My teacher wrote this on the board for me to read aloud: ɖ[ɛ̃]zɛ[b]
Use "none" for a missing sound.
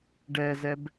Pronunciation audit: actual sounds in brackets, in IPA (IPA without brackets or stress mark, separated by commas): ɛ, b